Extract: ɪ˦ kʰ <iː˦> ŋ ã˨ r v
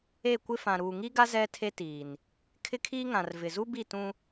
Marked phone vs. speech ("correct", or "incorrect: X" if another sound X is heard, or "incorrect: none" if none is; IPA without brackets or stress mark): correct